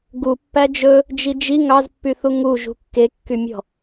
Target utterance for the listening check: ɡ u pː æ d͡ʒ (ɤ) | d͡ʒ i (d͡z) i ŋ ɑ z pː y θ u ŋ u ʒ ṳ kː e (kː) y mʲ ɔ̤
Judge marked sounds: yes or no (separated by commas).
no, no, yes